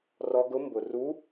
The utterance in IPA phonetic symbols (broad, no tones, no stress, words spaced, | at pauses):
rɔ ɡʊ mbʊ ru